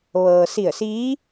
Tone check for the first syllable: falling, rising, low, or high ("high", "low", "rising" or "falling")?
low